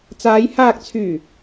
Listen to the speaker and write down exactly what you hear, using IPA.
t͡s aː˨˧ j h aː˨ k̚ t͡sʰ yː˨˩

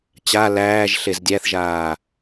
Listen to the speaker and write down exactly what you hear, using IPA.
t͡ɕ a l æː ʒ ɬ e z dʲ æ θ ʒ aː

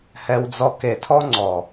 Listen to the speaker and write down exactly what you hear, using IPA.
h ɛ˧ w d͡z ɔ˧ k e˨ tʰ ɔ˦ ŋ͡ǀ ɔ˨

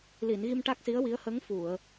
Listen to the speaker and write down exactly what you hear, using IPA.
l i˨˩˨ n ɣ i˧ m ʈ a˦˥ k̚ s i˧˥ ə̯ w i˧˥ ə̯ h ə˧˥ ŋ f u˨˩˨ ə̯

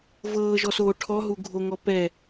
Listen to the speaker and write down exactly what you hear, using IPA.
v ɤː ʒ ɔ s oː ʈʰ ɔ ɦ u ɡʱ o ŋ ɔ p ɛ

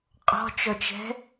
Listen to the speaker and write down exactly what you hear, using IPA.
qʼ ɔ̤ t͡ʃ ɔ t͡ʃ ɛ̤

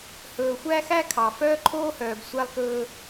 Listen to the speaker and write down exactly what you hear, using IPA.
h ɵː˨ xʷ æ˦ x æ˦ kʰ ɑ˨ f œː˦ ǃʰ oː˦ h œː˨ b sʷ æ˦ lˠ k ɵː˦

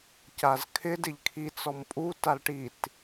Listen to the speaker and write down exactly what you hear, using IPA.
c a z kʰ ɪ d ɪ ʎ kʰ i t͡s ɔ m pʼ u t a l ʈ i t

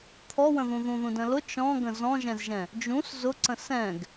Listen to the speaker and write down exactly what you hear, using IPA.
t̪ʰ ɔ w ə̃ ð ũ ð ũ ð ũ d ə̃ l ʊ t͡ʃ ɔ̃ ɡ ə̃ z ɔ̃ ʒ ɛ̃ z ʒ ɛ̃ | d͡ʒ ũ s z ʊ ǀ ə̃ s ɛ̃ ɡ

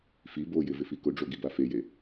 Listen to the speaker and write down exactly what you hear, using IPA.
f i b o j ɪ v ɪ f i k ʊ ɖ͡ʐ o ɡ i b a f e j e

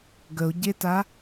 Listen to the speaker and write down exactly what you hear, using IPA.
ɡ ə o̯ ɟ e t a

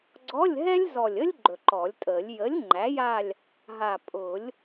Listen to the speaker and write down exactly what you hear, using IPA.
ɡ͡ǀ ɔ˧˥˧ lʲ ɦ ɛ˥ lʲ z ɔ˨˩ lʲ ə˥ lʲ ɡ͡ǃ ɵ˨˩ ǃ ɔ˨˩˦ lʲ tʼ ə˨˩˦ lʲ j ə˩˥ lʲ ŋ͡ǃ æ˩˥ j a˦˨ lʲ | ɦ a˨˩ pʼ ʊ˨˩˦ lʲ

